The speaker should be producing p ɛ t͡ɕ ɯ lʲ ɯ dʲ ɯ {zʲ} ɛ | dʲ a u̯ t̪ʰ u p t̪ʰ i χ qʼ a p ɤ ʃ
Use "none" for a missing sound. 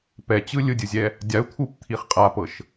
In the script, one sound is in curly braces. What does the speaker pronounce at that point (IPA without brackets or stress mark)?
zʲ